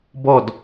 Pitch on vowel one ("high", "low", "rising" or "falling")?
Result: falling